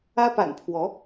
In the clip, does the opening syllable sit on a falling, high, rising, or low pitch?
high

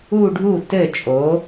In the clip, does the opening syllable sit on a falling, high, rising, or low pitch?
falling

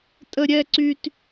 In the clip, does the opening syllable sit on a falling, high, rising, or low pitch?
high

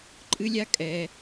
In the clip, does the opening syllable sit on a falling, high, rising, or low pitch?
high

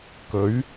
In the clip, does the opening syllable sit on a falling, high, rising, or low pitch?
rising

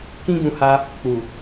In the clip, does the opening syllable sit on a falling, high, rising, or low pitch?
high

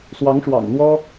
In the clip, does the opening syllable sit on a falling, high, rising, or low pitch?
rising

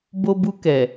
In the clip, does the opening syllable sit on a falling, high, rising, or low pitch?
high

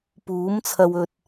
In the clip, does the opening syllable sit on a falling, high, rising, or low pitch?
rising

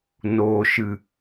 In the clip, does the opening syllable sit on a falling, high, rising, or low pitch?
low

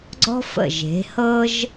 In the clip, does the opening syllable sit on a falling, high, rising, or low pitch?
high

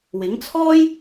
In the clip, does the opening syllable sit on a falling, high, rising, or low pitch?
rising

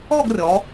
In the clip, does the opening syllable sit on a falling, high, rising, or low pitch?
falling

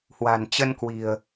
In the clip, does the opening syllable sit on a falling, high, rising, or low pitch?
low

